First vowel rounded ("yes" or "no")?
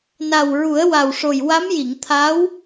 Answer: no